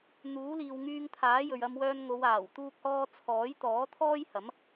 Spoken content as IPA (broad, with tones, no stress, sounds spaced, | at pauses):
n̪ uː˨˥ l iː˨ w ŋ yː˧ ŋ t̪ʰ aː˨˥ j ɵ˨ ɥ ɐ˧ m w œː˧ n ŋ o˨˧ w aː˨˩ w t̪ uː˥ k̚ h ɔː˥ t͡sʰ ɔː˨˥ j t̪ ɔː˨˥ t̪ʰ ɔː˥ j h ɐ˨˥ m